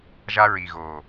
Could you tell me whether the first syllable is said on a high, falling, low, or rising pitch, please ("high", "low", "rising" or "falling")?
high